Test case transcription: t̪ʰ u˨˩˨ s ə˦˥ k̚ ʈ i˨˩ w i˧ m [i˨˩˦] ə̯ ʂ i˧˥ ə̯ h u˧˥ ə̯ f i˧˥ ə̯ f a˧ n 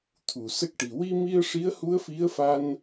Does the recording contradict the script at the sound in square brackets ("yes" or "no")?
yes